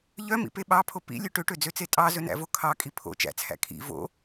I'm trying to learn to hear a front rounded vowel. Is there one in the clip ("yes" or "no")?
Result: yes